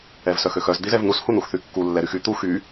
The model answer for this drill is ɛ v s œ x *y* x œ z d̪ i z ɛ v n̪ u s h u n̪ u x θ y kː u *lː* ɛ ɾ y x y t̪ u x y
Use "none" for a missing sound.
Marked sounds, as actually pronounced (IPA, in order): ø, lː

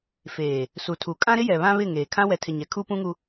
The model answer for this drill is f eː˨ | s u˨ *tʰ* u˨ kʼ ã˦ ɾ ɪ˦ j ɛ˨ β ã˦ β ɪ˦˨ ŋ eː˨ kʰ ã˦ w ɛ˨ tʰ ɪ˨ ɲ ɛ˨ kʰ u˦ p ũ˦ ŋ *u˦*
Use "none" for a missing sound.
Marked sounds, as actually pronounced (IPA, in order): tʰ, u˦

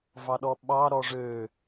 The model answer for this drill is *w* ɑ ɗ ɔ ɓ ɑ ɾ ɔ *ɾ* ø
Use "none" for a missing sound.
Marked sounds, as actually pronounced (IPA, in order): v, ʐ

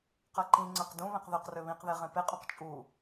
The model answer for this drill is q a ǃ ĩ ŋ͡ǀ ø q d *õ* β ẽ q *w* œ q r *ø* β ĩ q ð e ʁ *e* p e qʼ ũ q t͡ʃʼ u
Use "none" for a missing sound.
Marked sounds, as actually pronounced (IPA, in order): ũ, ð, ø, ẽ

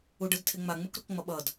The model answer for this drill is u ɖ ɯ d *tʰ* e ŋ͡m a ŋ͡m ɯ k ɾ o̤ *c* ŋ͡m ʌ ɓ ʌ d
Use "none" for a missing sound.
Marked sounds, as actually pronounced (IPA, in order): tʰ, k

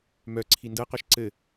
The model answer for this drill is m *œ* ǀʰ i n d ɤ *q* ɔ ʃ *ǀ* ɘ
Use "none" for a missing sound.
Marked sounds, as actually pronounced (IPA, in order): œ, q, ǀ

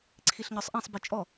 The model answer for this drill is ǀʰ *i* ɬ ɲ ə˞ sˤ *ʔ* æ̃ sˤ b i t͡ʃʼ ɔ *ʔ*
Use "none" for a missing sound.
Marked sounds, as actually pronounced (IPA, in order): i, ʔ, none

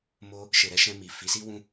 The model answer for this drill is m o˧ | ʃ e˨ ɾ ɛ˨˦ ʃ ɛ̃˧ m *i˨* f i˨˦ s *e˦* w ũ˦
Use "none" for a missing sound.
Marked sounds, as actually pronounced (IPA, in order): i˨, i˦

